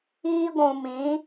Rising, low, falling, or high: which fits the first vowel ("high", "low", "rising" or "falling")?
high